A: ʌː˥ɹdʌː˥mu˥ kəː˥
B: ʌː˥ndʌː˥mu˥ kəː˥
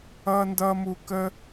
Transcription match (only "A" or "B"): B